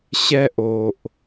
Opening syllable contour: high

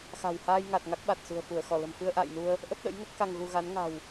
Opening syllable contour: low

